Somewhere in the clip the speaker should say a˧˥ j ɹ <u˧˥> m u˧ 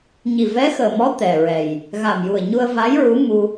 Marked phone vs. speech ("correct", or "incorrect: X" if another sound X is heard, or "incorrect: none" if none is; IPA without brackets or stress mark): correct